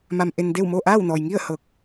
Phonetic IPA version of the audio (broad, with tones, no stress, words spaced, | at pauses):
ma˧mʔe˧n de˥˨wmo˥˨ ʔaː˥˨wnɔː˩jŋi˥˨ə̯ hɤː˧˩k̚